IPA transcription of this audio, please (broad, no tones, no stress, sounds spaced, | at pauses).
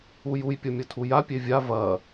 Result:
u j u j pʲ ʌ mʲ ʌ tʰ u j a pʲ e vʲ a v ɐ